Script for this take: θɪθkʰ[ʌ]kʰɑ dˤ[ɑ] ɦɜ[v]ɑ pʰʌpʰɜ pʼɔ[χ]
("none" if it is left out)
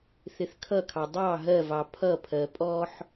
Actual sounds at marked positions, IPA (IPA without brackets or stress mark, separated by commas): ʌ, ɑ, v, ħ